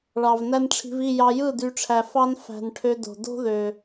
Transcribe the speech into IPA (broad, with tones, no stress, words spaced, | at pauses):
ɭɑ˨vnæ˦nʈ͡ʂʰi̤˧vi˦˨ jɑ˧jɯ˦˨ dy˧ʈ͡ʂʰæ˨ fɑ˦n fæ̤˨n ʈʰø˧do̤˨ do̤˦ ðø˨